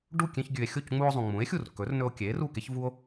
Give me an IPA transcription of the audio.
ɖu˥˩ kʲẽ˧çɡʲʉ˩e̯ xʲo˥˩cŋ͡mu˧o̯zˤũ˩ ŋ͡mũ˩˥e̯xʲu˥˩r kɵ˩˥rnɵ˧o̯kʲe˩˥ ru˥˩ke˥ç vu˥o̯

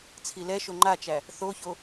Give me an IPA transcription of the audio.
t͡sʰilɛʃo ŋ͡ǃat͡ʃæ | θoço

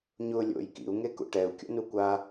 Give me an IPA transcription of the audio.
ɲʊlʲo̰j kḭu̯ŋekṵ ʈɛu̯kʲo̰nu kʷa

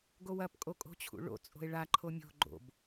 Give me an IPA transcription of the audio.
ɡowɐpkʼo kʼo̤t͡ɕʰṵɭo̰t͡sʼo̤e̯ ɭaǃʰo mʲo̤ ɡ͡ǃo̰b

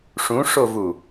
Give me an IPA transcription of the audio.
ʂũʂovu

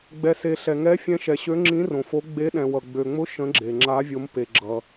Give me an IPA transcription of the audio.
ɡ͡bɛ˩se˩ ɬɛ˩ŋɛ˨˥ fʲɛ̃˨˥ʃɛ˩ɕø˨˥ŋ͡ǁĩ˨˥ rõ˩fo˨˥ ɡ͡be˨˥ ɗɛ̃˩wʌ˩ ɡ͡bø˩ŋ͡mʊ˨˥ ʃə̃˨˥ɡ͡ǁe˩ ŋ͡ǁa˨˥vʲo˨˥m pe˩ɡ͡ǁʌ˩

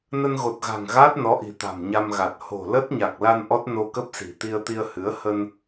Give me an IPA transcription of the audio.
nə˧nɣo˨˩t̚ɣa̤˨˩ŋ ɣaː˦˥t̚nɔ˨˦ʔi̤˨˩ t̪a̤˨˩mɲa˧mɣa˨˩t̚ ho̤˨˩ lə˦˥t̚ ɲa˨˩k̚la˧n ʔɔ˦˥t̚ no˧kə˦˥p̚si̤˨˩ t̪i˧ə̯t̪i˧ə̯ hɨ˨˦ə̯ hə˧n

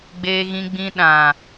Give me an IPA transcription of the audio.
ɡ͡beː˧ɣĩ˧ɡ͡bĩ˧ ɗã˨

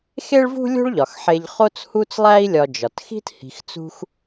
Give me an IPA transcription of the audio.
xe˥ɭvṳ˥ lʲo̤˦ɭʎɒ˩xħe˨ʎ χo˦t͡shu˦t͡slˠæ˦i̯ lʲɒ˨ d͡ʒɒ˩txi̤˦t hi̤˨xt͡sṳ˦x

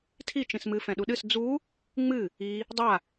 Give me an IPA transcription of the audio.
tʰi t͡ʃĩsmɨ fɛ̃ɗuɗɨs d͡zu | ŋ͡mɨ | i | dˤa

